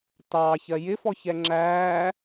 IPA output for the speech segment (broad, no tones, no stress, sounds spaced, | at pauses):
t ɑː ç ɜ j ɪ f ɔ ç ɛ ŋ͡ǁ æː